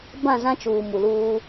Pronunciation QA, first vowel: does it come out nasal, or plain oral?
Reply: nasal